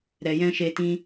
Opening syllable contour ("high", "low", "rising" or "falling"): low